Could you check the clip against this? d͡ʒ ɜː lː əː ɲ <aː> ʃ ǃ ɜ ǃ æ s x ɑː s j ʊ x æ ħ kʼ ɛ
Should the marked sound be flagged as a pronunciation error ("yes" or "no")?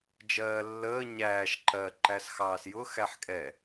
yes